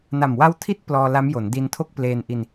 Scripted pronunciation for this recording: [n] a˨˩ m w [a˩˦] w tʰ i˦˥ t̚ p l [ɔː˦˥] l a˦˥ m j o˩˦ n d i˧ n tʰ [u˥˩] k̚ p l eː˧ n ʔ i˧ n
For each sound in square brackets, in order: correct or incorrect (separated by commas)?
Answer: correct, incorrect, incorrect, incorrect